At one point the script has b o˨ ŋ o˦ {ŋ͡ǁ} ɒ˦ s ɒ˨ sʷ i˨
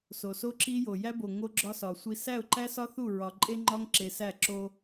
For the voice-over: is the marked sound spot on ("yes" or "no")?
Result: no